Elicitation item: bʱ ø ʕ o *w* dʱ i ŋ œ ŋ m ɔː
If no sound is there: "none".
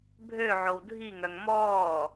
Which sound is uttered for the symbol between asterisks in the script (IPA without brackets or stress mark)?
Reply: w